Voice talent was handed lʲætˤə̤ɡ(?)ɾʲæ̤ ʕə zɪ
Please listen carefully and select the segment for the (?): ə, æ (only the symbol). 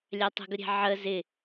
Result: ə